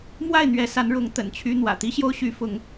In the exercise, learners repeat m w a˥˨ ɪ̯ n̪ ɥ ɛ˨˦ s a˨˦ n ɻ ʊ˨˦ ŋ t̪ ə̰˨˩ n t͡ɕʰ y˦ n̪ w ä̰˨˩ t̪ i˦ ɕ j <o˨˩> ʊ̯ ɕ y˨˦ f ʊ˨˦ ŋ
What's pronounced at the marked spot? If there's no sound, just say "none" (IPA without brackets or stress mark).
o˦